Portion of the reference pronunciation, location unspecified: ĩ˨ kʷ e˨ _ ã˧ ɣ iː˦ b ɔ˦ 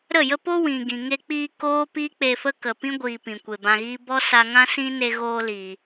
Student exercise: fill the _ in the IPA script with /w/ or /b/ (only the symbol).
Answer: b